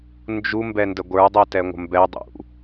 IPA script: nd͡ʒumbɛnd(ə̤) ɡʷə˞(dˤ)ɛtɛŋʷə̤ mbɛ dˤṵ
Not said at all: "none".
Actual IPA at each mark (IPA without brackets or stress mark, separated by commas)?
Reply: ə, dˤ